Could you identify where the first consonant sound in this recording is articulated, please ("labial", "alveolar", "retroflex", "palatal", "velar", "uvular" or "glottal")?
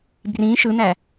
labial